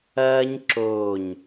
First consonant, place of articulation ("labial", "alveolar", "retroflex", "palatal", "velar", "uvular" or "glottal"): palatal